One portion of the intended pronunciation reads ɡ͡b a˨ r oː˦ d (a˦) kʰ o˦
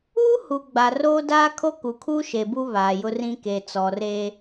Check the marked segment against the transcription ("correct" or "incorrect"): incorrect